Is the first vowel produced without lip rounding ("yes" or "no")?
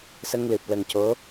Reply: yes